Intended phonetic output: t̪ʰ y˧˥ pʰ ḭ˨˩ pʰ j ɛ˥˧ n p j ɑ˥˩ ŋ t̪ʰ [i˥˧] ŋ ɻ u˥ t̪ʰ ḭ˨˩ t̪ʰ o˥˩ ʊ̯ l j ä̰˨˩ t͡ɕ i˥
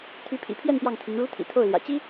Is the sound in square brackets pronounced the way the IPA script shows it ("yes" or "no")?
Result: no